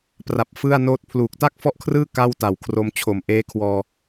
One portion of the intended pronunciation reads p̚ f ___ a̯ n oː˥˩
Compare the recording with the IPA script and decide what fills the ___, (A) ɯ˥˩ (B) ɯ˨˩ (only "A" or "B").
A